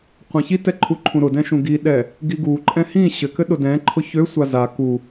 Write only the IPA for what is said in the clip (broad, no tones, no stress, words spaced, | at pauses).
qʷãçitɛ ǃʰuǃʰũɾʊdɛ̃ ʃũɡiɗɛ | ɡiɡuǃʼɛ̃ hĩ ɕɘkɘ ɗʊdɛ̃ǃʰʊ çøsʷa za ku